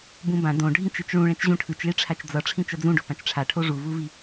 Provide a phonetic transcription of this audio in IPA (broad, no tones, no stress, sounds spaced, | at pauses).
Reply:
b ũ b ã d õ ɖʱ ĩ t͡ʃ e t͡ʃ ɭ ũ ɭ ɛ̃ t͡ʃ ʑ ũ ʈʰ ɯ t͡ʃ ɭ i ʈ͡ʂʰ a t͡ʃ d͡z ʌ ʈ͡ʂʰ ĩ t͡ʃ ʌ d͡z ũ ɖ o p ã t͡ʃ ʈ͡ʂʰ a ʈʰ o ʐ u v u v i